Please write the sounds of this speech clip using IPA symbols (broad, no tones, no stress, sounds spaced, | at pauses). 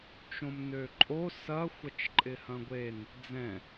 t͡ʃ õ m n ø ǃʼ o s ɐ xʷ ɐ t͡ʃ ǃʼ ɪ h ɐ̃ ɡʷ e n | d͡z ɛ̃